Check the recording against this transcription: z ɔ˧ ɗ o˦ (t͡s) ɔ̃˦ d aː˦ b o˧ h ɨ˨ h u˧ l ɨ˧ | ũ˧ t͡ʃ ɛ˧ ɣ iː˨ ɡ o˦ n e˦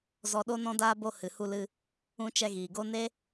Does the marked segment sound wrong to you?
yes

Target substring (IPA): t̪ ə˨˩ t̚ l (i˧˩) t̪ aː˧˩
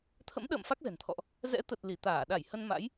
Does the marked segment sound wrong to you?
no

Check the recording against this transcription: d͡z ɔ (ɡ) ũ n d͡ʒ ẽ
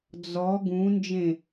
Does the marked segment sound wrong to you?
no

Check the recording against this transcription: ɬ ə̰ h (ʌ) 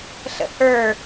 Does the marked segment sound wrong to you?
yes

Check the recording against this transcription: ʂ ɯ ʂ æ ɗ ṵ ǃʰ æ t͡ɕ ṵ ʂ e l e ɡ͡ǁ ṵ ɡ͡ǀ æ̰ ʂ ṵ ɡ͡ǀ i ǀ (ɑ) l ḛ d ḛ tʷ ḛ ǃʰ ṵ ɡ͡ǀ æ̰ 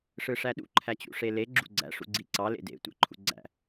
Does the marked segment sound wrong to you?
no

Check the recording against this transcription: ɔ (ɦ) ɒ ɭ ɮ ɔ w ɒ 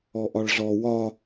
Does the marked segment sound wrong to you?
yes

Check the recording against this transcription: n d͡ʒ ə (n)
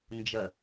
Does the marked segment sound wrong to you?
yes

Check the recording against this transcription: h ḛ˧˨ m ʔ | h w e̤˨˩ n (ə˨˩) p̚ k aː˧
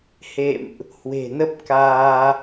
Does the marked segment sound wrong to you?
yes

